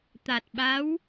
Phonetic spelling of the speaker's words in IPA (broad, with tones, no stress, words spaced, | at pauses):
t̪a˨˩t̚ɓa˧˥w